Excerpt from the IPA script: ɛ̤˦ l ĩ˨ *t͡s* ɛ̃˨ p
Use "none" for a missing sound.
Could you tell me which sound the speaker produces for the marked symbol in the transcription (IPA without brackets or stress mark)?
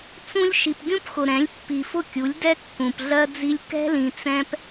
t͡s